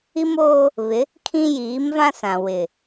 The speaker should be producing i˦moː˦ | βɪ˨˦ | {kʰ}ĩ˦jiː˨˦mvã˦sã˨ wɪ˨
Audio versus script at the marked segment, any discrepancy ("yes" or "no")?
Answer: no